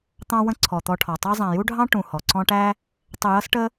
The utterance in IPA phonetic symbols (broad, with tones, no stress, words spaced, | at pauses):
t̪ɑ̃˦wə̃˦ ǀʰɔ˩t̪ɔ˨ʈʰɒ˩ tˤæ˦zˤæ̃˨ju˥ɖʱɑ̃˥ ʈũ˨hɔ˩ǀɔ̃˦ʈæ˥ | tˤɪ˨jʌ˦sʈə˦